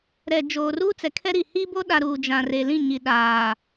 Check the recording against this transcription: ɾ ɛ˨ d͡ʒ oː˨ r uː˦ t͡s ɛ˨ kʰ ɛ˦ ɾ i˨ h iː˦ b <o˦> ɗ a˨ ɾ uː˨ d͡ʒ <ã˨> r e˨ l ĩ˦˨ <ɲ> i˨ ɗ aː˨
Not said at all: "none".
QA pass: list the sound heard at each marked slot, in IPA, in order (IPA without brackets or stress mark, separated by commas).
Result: o˦, ã˨, ɲ